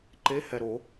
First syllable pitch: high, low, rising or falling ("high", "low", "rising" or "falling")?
rising